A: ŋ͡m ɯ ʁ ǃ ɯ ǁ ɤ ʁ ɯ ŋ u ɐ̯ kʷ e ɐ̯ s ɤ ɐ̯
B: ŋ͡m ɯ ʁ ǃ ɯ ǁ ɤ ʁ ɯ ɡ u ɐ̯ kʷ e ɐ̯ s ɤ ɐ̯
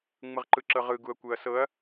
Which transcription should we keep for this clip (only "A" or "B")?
B